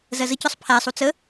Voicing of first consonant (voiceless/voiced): voiced